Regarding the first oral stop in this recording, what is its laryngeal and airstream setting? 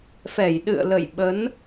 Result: implosive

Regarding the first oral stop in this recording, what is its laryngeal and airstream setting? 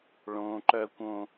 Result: click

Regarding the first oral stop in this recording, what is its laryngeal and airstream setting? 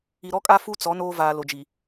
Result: ejective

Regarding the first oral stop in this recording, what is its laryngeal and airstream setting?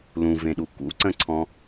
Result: implosive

